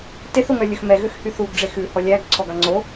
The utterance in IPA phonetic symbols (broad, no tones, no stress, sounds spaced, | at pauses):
t e θ o ŋ œ lʲ ɵ x m ɛ ɣ ø x h y θ u ɡ ɖ͡ʐ e x ʉ h ɔ lʲ æ ɡ ǀʰ ɔ ɡ ɑ ŋ͡ǀ o